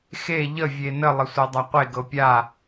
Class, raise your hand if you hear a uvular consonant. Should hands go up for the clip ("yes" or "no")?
yes